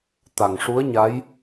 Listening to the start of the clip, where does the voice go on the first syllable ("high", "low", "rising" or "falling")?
low